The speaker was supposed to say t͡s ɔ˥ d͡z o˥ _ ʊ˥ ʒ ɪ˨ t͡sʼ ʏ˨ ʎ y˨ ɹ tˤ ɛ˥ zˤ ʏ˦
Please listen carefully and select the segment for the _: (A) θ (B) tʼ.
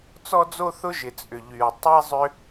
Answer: A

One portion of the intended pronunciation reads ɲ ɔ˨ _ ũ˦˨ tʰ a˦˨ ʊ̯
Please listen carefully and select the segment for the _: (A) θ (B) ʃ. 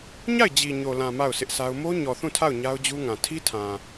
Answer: A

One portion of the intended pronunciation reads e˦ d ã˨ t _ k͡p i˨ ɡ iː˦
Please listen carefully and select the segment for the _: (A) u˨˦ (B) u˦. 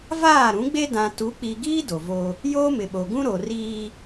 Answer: A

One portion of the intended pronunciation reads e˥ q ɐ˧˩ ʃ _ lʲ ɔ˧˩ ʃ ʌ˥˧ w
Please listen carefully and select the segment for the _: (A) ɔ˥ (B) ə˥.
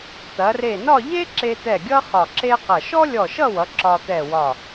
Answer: A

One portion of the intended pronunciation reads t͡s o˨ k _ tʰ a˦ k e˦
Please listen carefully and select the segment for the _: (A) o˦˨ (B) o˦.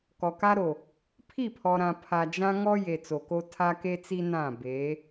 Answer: B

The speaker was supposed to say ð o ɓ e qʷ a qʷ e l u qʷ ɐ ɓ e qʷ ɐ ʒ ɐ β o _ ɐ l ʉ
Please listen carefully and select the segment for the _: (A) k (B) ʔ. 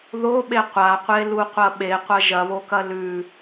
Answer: A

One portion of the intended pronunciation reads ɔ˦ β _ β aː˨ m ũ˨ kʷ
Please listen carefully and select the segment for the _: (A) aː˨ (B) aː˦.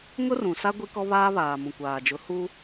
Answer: B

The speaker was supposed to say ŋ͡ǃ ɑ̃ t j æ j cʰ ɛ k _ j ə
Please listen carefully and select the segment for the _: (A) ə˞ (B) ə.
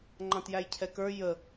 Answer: A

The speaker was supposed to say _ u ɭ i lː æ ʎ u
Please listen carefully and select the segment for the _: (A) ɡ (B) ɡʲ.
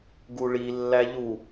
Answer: A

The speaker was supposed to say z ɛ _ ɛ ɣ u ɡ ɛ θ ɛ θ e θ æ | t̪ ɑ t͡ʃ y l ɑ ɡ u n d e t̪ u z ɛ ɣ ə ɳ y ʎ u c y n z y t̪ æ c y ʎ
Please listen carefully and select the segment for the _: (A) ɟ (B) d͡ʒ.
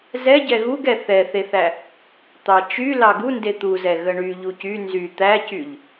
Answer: A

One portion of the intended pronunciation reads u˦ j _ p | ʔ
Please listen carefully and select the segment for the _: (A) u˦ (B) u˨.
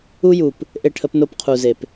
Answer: B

